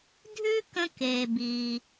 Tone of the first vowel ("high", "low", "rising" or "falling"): high